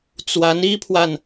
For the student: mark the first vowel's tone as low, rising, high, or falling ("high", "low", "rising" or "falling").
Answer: rising